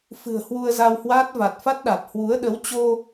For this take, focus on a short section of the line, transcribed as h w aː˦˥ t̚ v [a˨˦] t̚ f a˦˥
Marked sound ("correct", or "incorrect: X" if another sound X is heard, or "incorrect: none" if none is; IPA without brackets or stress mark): incorrect: a˨˩